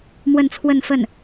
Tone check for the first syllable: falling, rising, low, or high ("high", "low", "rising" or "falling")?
falling